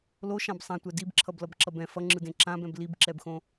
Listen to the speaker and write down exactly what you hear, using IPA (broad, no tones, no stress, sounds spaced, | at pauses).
l o ʃ ã b sˤ ã tʷ ɛ d i b ǁʰ ʌ b l ʌ b ǁ ʌ b ɛ̃ f ʌ ŋ͡ǁ ɯ d ẽ ǁ ã b ɛ̃ b l i b ǁ ɛ b x õ